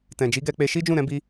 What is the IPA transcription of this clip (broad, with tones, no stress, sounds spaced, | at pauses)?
t ɛ̃˨ d͡ʒ i˨˦ ɡ ɛ˧ k͡p e˧ ʃ i˦ d͡ʒ ũ˦˨ ɾ ɛ̃˧ b i˧